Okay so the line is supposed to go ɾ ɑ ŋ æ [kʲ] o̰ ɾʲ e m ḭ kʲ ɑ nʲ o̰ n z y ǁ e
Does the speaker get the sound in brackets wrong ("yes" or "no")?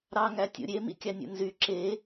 yes